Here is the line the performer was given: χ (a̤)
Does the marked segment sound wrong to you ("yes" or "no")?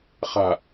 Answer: no